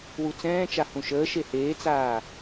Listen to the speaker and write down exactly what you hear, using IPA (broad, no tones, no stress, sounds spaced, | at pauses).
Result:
w u t͡s ɛ̃ː t͡ʃ a h ũ ʃ əː ʃ e h eː t͡s aː